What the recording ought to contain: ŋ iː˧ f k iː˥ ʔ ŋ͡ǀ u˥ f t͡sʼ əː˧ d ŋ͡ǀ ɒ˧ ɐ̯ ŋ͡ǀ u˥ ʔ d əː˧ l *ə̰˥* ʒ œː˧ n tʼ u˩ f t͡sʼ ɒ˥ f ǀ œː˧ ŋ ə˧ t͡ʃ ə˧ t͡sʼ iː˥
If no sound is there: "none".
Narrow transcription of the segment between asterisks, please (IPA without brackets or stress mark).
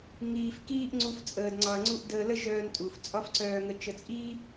ə˥